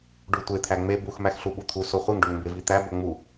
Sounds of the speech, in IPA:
ɖ u tʷ e t̪ʰ æ ŋ͡m e b u x m æ x ɬ u ɓ u t̪ʰ u s o χʷ e ŋ ɖ o ŋ m b e v i t̪ æ b o ŋ͡m u

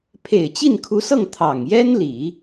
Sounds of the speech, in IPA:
pʰ e˨˩ ɪ̯ t͡ɕ i˥˩ n kʰ u˧˥ s ɤ˥˩ ŋ t̪ʰ ɑ˨˩ ŋ j ɛ˥ n l i˨˩˦

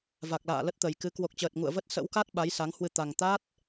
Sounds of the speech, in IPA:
v a˨˩ k̚ l a̰ː˧˨ l ə˦˥ t̚ t̪ ə˨˩ j k ɨ˨˦ k w o˨˩ k̚ t͡ɕ əː˨˩ t̚ ŋ ṵ˧˨ ə̯ v ə˦˥ t̚ s ə̰˧˥ w k a˦˥ t̚ ɓ a˨˦ j s a˨˦ ŋ h w ɨ˧ t̪ a˨˩ ŋ t̪ a˦˥ t̚

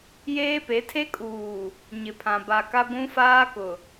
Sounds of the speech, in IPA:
j eː˦ p e˨˦ tʰ e˦ kʼ uː˨ | ɲ ɪ˨ pʰ ã˨ b a˨ k a˦ ɡʷ ũ˦ f aː˦ k ʊ˨

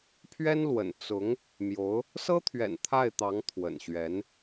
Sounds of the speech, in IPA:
pʰ ɥ ɛ˥ n l w ə̰˨˩ n t͡s ʊ˧˥ ŋ | m j o˧˥ ʊ̯ | s ɤ˥ t̪ʰ ɥ ɛ̰˨˩ n t̪ʰ a˥˩ ɪ̯ t̪ ɑ˧˥ ŋ t̪ʰ w ə̰˨˩ n ɕ ɥ ɛ˧˥ n

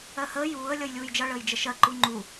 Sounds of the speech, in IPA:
ɜ h əː j uː ə̯ lʲ ʌ j lʲ uː j d͡ʒ ʌ ɭ əː j d͡ʒ ə ʃ ɜ ǃ u ŋ͡ǃ u

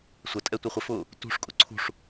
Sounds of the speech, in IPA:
sʷ ə tʼ ɛ tʷ i χʷ ɪ f ʊ | t ṳ ʂ kʼ ʊ ǀʰ ṳ ʂ

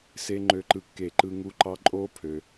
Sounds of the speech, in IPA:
s e˦˥ ŋ͡ǃ ø˧ ǃ ɯ˧˩ kː e˧˩ ǃ ɯ˧ ŋ u˧ ǃ ɑ˧ ǃʼ o˦˥ pʰ ø˧

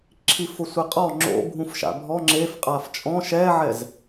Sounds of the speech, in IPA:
ǁʰ i f ʊ sʷ ɪ qʼ ɔ ŋ͡ǁ o̰ bʱ ũ f ʃ a̰ bʱ ɔ ŋ͡ǁ e f qʼ a f t͡ʃʼ ɔ̃ ʃ ɛ ʕ ɛ z

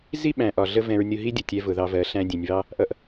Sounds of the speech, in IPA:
z i˦ ɓ æ̃˨ ʔ ɒ˨ ɮ ə˧ v ɛ̃˧ ɹ nʲ ʊ˧ ɦ i˦ dʲ ə˨ tʲ ɛ˧ v ʊ˨ ð ɑ˧ v ɜ˨˦ ɬ æ̃˧ dʲ ɛ̃˨ nʲ β ɑ˦ | ʔ ʌ˦ ʔ

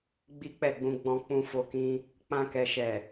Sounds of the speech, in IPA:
ɡ͡b i˦ k͡p ɛ˦˨ ɡ͡b ũ˧ ɡ͡b ɔ̃˧ k͡p ũ˧ f o˧ k ĩ˧ | k͡p ã˧ k ɛ˨ ʃ ɛ˨

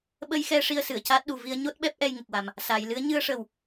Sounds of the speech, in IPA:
ɓ ə˧ j x ɛ˧ ʂ i˧ ə̯ s ɨ˨˩˨ ə̯ c aː˦˥ t̚ ɗ u˨˩ v i˧ ə̯ ɲ o˦˥ t̚ ɓ ɛ˦˥ p̚ ʔ ɛ˧ j ŋ ə˨˩ k̚ w a˨˩ m | s a˨˩˨ j l ɨ˧˥ ə̯ ɲ ɨ˧ ə̯ ʂ ə˨˩ w

